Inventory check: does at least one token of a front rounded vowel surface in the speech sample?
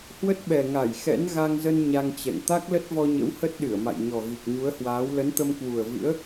no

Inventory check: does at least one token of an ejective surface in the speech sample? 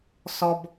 no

